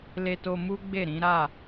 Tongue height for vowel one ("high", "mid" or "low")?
mid